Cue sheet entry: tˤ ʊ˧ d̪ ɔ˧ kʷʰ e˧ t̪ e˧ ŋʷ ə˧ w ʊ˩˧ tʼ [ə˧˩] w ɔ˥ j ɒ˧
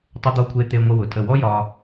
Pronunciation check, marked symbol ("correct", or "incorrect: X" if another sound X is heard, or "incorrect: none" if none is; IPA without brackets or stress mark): correct